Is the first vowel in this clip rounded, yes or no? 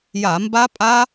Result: no